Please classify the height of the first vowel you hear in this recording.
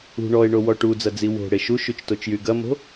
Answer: high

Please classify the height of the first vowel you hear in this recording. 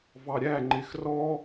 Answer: low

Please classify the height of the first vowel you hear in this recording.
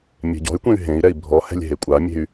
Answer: mid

